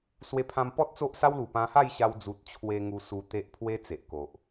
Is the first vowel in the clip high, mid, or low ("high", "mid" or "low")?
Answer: mid